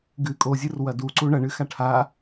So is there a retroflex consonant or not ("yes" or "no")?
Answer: yes